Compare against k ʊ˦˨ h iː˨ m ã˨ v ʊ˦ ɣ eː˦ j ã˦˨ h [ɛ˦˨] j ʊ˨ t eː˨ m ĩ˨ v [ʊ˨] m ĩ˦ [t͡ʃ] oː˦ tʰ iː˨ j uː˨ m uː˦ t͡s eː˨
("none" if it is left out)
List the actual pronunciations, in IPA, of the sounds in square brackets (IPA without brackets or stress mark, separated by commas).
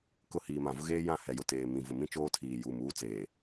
ɛ˨, ʊ˨, t͡ʃ